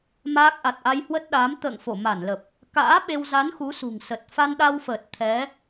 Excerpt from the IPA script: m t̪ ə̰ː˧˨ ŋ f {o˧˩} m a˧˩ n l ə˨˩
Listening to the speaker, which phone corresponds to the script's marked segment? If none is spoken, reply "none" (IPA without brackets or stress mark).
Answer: o˧˩